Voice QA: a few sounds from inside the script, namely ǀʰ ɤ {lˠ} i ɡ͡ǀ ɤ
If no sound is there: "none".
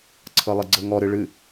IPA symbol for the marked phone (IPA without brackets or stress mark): lˠ